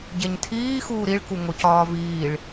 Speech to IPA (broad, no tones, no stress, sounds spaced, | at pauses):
ɟ e ɲ tʰ iː x uː ɾ i ɭ k u ŋ o c ɒː v iː ɭ